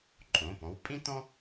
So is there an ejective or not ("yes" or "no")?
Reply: yes